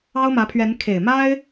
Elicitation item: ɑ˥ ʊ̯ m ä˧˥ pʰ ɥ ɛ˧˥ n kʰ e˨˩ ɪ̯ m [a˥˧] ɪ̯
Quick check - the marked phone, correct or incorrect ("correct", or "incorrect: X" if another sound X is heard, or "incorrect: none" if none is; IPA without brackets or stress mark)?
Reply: incorrect: a˥